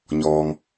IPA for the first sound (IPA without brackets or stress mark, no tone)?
ɲ